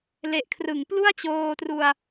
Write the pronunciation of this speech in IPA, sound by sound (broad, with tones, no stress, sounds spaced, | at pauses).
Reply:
l e˨˩ ʔ kʰ r ɯ˩˦ ŋ p l u˥˩ a̯ t͡ɕ oː˧ t r u˧ a̯